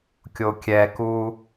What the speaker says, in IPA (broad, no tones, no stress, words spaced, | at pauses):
kʲokʲɛku